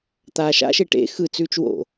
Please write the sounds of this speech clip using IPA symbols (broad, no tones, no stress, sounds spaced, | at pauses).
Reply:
t̪ aː ʃ a̰ ʃ e ʈ ḛ x ɯ t͡s ʉː t͡ʃ w o̰